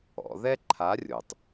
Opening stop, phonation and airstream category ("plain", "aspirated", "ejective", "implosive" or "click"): click